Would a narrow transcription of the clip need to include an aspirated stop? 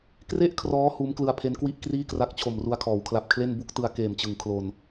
yes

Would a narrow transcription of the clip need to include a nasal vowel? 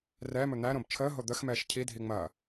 yes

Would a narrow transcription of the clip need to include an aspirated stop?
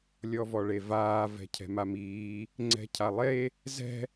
yes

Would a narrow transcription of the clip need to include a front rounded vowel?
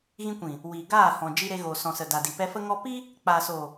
no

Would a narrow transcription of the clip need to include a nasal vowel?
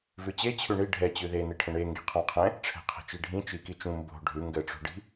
yes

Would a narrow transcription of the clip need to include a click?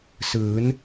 no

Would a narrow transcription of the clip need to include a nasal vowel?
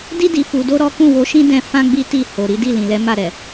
yes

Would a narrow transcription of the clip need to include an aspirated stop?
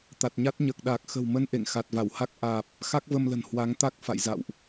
no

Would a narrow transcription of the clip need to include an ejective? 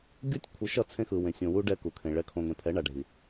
no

